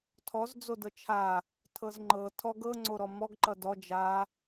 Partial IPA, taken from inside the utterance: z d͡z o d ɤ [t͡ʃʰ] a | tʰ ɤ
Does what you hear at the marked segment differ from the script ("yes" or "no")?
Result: no